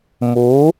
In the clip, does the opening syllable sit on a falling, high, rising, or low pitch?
rising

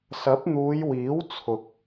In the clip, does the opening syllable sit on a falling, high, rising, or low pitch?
rising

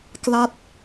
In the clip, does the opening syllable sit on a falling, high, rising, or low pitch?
falling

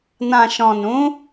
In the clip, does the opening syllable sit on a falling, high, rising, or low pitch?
low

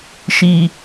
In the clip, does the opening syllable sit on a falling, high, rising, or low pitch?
low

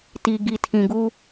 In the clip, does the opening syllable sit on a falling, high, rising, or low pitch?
low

